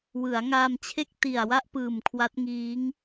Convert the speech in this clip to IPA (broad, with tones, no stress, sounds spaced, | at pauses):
w ɯ˩˦ a̯ ŋ aː˧ m t͡ɕʰ e˥˩ k̚ t i˨˩ a̯ w a˥˩ ʔ p ɯː˨˩ m kʰ w a˦˥ t̚ ŋ iː˦˥ ŋ